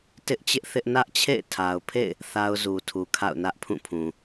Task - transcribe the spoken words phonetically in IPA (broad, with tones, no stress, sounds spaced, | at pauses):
t ɪ˦ ʔ t͡ɕ ɪ˦ ʔ θ ɪ˦ ʔ n ä˦ ʔ t͡ɕʰ ḛ˦˨ ɪ̯ tʰ a˨ ʊ̯ pʰ ḛ˦˨ ɪ̯ | θ a˦ ʊ̯ z u˨ tʰ u˨ kʰ a̰˦˨ ʊ̯ n ä˦ ʔ pʰ ũ˦˨ pʰ ũ˨